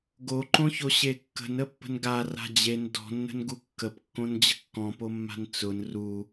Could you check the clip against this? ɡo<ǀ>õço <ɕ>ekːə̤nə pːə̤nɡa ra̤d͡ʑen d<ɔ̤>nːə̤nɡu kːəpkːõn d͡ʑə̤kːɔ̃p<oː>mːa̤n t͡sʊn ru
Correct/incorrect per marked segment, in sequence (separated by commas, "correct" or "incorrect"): incorrect, correct, correct, incorrect